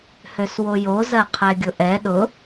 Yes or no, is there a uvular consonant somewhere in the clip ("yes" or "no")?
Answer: yes